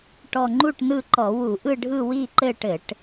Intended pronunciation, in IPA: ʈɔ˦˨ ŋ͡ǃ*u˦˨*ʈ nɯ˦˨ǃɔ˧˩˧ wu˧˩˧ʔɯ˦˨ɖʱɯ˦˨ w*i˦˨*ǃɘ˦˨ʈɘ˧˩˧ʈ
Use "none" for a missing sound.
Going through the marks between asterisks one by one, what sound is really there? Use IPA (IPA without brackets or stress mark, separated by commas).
u˦˨, i˦˨